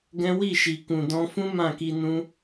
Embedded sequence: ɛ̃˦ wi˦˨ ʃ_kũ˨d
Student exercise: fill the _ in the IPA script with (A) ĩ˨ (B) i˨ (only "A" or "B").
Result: B